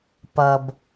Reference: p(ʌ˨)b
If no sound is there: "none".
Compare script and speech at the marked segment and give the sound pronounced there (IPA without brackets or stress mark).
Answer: ʌ˨